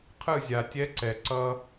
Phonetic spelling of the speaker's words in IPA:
qʰ ɯ˦˨ zʲ a˨ tʲ ɛ˦ ǀ ɛ˨ ǀ ʌ˦

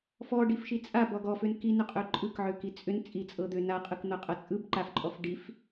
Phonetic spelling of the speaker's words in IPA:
f ɔ ɖ i f ʃ i t͡sʼ a b ɔ ɡ ɔ f ø n k i n ʏ qʼ ø ǃʼ ɯ k ʕ ø k i t͡sʼ ʏ n t͡sʼ i t͡sʼ ɤ d̪ ø n a qʼ ɯ k n̪ ɤ qʼ ɤ t͡sʼ ɯ b ǃ a f ǃʼ ɔ f ɖ i f

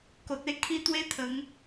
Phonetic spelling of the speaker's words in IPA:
k o˨ t̚ e˦ kʰ i˦ t̪ w e˦ t̪ʰ ə˨˦ ŋ

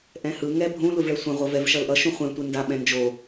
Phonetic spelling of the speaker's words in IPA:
ʔ ɛ̃ h ɯ ŋ ɛ bʱ ũ l u v ɭ ɛ sʷ ɛ̃ ʁʷ ʌ v ɛ v ʃ ʌ l ʔ ʌ ʃ ũ χʷ ɛ̃ tʷ e n d a ɓ ɛ̃ n d͡ʒ o

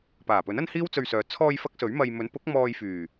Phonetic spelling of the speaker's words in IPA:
p aː˨˩ p ɵ˨˥ n ɐ˥ n h iː˥ w t͡s ɵ˧ ɥ s œː˨˧ t͡sʰ ɔː˧ j f ɐ˥ k̚ s ɵ˨˥ ɥ m ɐ˧ j m ɵ˨˥ n p ʊ˨˥ k̚ m ɔː˧ j f yː˨˩

